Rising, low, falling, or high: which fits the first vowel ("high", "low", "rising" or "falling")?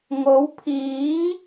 rising